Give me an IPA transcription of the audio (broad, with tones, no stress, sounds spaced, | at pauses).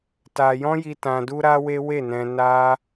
t a˧ j ɔ̃˦ j i˧ t ã˧ d u˦ ɾ a˦ w e˦ w e˦˨ n ɛ̃˧ n a˦